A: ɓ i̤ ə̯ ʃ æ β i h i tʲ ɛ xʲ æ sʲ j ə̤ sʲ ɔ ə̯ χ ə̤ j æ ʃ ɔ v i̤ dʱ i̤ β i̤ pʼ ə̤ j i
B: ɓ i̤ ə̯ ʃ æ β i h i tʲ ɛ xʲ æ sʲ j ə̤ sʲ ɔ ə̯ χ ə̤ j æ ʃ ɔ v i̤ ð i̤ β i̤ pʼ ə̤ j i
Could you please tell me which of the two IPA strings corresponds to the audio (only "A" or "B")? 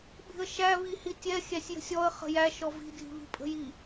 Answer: A